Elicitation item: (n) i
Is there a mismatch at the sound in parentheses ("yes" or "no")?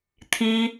yes